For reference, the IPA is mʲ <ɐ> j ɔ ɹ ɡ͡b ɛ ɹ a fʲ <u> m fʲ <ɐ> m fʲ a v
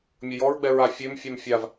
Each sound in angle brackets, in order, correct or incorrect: correct, incorrect, incorrect

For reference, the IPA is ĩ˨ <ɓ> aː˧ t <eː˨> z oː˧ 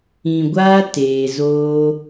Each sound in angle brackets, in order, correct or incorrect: incorrect, correct

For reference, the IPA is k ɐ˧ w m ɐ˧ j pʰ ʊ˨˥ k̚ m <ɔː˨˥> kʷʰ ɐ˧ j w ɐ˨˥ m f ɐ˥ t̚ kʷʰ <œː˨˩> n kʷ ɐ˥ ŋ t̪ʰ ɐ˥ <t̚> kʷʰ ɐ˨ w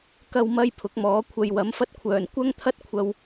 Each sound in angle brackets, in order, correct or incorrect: correct, correct, correct

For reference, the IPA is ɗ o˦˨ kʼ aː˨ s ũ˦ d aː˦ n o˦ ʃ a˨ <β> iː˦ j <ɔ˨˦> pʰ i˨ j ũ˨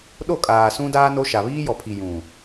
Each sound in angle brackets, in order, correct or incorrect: correct, incorrect

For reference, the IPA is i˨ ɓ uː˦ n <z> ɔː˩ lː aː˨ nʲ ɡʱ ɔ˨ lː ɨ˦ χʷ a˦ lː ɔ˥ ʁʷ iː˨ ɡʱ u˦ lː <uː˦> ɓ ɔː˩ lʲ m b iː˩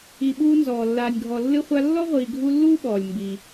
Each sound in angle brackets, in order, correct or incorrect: correct, incorrect

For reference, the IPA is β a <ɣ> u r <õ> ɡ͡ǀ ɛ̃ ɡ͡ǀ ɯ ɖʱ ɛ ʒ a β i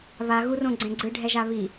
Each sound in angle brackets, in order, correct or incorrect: correct, correct

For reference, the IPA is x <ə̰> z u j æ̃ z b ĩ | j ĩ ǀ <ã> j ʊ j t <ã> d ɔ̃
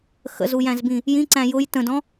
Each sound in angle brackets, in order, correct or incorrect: correct, incorrect, incorrect

